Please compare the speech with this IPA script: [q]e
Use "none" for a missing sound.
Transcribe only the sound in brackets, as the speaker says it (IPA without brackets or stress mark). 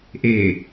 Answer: ʔ